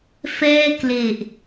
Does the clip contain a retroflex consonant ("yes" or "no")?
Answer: no